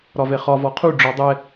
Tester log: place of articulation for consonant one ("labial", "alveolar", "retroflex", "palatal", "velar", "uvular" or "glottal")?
alveolar